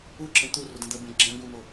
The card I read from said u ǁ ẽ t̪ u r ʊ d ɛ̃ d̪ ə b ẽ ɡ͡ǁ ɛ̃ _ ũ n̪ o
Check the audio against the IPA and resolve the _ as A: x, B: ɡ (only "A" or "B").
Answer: B